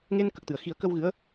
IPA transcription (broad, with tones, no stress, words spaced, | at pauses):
ŋe˧nkə˨˩k̚t̪ɨ˨˩˨ə̯ xi˨˩˦ə̯kə˧w ɣɨ˧˥ə̯